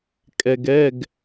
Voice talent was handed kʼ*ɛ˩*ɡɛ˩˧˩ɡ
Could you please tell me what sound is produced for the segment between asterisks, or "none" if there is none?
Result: ɛ˩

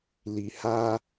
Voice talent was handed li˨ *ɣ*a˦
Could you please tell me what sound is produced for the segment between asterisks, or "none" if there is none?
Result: h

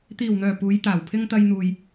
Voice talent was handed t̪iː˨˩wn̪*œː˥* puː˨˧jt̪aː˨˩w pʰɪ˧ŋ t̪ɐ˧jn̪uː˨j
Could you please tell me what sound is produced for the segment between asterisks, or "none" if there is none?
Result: œː˨˩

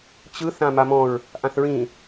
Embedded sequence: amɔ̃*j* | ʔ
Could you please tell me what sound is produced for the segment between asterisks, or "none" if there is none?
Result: ɹ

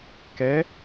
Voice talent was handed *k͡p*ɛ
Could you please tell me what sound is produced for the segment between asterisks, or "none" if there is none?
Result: k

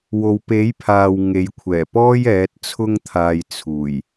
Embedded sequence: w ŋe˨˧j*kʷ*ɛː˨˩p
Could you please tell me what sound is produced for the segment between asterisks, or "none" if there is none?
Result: kʷʰ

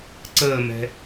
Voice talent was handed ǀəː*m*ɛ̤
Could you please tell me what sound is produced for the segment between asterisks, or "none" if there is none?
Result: m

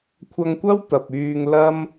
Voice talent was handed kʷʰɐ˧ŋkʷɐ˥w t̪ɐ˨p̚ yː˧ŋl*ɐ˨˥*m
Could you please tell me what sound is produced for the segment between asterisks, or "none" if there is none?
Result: ɐ˥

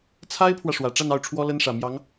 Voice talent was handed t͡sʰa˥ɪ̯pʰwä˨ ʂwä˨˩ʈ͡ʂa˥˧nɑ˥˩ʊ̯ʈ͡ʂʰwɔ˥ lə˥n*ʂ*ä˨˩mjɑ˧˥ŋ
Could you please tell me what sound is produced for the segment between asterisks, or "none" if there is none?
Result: ʂ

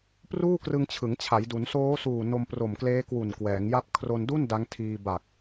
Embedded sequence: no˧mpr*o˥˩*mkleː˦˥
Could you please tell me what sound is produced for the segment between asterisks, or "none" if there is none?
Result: o˨˩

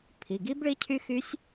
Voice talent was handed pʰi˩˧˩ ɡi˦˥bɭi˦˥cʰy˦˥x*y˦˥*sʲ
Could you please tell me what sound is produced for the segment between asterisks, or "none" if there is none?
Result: y˦˥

